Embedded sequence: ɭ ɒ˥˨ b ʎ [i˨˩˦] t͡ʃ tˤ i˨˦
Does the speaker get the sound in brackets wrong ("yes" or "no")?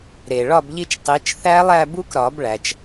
yes